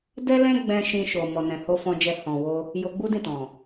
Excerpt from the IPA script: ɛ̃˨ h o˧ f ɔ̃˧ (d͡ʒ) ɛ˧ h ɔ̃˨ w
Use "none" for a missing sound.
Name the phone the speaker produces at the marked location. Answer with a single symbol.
d͡ʒ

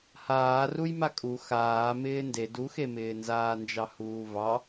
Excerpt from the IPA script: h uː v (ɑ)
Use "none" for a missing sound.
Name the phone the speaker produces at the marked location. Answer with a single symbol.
ɑ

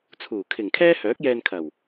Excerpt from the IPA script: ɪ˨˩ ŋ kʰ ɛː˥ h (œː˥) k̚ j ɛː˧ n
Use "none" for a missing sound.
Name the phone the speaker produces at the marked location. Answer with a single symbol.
œː˨˥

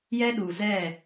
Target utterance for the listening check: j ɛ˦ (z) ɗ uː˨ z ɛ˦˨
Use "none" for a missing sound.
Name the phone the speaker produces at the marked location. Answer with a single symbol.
none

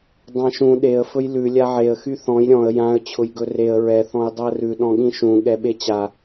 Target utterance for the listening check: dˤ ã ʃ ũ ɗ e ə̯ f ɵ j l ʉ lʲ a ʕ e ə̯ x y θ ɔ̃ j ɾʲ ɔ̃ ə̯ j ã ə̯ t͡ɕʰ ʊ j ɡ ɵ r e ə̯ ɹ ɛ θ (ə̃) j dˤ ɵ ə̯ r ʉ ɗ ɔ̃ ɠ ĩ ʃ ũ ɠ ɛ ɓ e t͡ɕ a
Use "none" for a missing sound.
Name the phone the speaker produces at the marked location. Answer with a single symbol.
ɔ̃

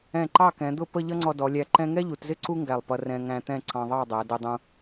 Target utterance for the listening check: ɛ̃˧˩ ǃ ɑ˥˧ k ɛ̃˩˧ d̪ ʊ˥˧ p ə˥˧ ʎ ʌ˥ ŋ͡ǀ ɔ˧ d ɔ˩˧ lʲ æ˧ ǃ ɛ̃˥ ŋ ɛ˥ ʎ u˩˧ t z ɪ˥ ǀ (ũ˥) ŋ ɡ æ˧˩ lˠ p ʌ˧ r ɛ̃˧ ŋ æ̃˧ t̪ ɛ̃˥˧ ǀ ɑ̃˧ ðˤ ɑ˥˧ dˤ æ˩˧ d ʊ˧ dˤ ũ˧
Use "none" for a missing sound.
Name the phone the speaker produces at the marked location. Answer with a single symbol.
u˥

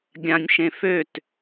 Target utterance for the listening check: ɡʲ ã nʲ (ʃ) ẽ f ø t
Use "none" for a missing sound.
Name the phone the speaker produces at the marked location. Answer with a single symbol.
ʃ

